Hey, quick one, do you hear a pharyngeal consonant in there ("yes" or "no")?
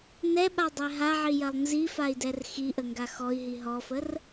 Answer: yes